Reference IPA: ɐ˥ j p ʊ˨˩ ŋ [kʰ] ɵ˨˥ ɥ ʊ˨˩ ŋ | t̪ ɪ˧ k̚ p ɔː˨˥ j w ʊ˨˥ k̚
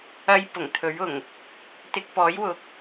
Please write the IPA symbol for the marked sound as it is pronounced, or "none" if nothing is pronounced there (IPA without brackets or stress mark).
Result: t̪ʰ